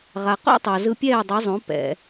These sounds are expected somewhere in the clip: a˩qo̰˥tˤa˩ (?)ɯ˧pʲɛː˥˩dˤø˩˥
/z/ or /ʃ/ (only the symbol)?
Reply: z